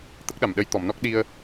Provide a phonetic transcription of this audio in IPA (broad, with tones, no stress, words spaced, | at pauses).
t̪ə˦˥k̚ɗa˨˩mɗə˧j t̪ɔ˨˩˨mnɔ˦˥k̚ɗi˧ə̯